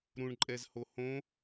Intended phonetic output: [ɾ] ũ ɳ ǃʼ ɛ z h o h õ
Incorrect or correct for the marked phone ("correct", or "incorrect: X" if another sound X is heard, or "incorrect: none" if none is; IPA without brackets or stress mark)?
correct